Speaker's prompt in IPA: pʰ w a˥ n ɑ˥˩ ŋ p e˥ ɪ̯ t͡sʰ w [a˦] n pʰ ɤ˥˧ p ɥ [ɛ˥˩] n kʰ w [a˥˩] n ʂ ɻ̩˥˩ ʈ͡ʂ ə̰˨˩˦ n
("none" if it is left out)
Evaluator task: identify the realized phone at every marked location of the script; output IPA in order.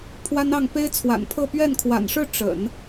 a̰˨˩, ɛ˥˩, a̰˨˩

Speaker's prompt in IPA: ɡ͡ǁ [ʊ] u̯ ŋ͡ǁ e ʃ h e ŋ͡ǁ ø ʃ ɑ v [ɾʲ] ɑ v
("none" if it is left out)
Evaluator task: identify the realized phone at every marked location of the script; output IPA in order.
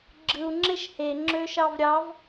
ɯ, ɾʲ

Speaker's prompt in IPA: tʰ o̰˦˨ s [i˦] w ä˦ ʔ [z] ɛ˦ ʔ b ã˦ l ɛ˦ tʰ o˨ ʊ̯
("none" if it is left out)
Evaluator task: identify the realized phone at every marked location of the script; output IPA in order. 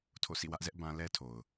ḭ˦˨, z

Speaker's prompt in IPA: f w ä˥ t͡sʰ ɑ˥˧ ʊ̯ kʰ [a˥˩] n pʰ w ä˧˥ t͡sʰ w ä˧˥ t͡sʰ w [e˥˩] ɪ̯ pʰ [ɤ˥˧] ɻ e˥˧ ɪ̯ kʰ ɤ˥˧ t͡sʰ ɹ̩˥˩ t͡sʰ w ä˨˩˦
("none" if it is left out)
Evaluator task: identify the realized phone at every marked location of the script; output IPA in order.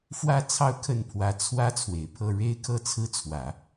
ə˥˩, e˨˩, ɤ˥˧

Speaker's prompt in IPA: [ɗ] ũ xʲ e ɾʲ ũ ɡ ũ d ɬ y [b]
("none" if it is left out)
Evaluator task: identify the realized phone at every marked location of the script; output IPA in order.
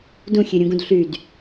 d, d

